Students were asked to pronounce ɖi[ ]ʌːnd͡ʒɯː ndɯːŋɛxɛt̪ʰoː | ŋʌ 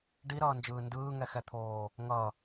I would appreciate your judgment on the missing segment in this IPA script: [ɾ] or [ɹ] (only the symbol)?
ɾ